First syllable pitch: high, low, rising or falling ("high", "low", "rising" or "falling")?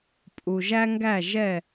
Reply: low